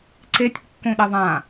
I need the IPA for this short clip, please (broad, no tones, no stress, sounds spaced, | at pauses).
ǀ e tʲ kː õ ɗ e ðˤ ã